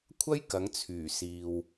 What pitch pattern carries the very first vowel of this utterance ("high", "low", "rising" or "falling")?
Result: high